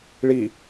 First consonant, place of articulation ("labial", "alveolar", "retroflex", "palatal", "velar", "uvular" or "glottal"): retroflex